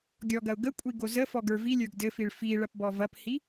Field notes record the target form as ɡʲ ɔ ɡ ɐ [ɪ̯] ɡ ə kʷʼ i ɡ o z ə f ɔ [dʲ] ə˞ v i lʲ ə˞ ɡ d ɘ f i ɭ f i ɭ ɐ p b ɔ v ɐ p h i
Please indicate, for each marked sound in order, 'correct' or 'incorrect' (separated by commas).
incorrect, incorrect